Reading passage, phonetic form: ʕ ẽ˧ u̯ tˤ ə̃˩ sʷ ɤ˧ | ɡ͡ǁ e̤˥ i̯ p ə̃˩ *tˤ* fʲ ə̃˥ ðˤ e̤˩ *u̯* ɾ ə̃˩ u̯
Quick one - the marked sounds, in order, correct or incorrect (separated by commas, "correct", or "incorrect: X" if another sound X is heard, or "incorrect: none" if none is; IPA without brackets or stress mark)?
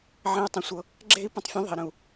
correct, incorrect: i̯